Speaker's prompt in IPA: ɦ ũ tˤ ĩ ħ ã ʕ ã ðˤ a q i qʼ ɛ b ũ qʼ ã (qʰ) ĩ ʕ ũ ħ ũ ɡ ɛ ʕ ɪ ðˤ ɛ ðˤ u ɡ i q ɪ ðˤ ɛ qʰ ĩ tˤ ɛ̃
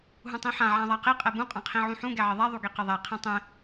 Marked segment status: correct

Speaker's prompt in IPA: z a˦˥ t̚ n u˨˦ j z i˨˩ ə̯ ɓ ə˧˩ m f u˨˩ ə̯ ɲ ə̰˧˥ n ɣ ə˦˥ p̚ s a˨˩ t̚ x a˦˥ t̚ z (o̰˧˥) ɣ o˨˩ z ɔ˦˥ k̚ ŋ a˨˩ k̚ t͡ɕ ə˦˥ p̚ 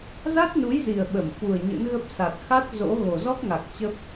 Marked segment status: correct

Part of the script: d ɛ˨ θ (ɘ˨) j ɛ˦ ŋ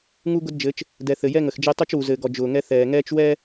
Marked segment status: correct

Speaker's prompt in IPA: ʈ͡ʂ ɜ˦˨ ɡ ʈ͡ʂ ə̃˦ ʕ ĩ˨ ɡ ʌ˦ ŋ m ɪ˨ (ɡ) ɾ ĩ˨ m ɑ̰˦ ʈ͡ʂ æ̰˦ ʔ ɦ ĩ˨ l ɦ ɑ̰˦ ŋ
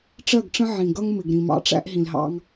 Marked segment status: correct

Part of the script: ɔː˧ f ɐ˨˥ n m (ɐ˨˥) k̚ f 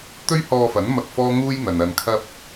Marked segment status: incorrect: ɐ˧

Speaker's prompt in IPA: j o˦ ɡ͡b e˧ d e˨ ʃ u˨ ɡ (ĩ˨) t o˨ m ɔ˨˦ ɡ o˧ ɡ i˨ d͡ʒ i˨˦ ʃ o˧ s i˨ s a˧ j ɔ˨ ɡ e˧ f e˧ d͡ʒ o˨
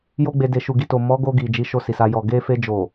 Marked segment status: incorrect: i˨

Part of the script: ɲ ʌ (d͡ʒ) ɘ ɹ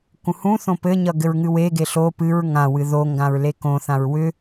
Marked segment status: incorrect: ɡ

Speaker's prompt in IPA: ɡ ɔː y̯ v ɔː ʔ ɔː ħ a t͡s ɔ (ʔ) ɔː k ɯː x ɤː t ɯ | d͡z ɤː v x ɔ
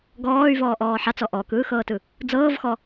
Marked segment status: correct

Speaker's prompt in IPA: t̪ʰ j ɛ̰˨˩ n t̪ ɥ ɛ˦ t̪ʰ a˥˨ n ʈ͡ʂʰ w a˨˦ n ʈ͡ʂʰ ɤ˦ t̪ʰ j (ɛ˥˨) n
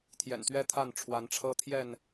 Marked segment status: correct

